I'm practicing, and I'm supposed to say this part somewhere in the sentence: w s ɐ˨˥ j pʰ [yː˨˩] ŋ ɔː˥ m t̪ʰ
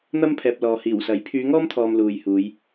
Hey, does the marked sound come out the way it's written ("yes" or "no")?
no